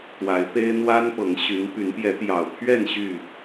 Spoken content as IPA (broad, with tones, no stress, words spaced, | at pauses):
t̪wa˨˦ɪ̯pe˦ɪ̯ n̪wa˦npɤ˨˦ŋɕy˨˦n py˨˦npjɛ˨˦t̪jɑ˨˩ʊ̯pʰɥɛ˥˨n ɕy˥˨